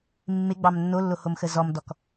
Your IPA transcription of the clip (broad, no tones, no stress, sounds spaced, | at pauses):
mː ɪ ɡ͡b ɑ m nː o lː o h o m x ə z ɔ m d ɔ k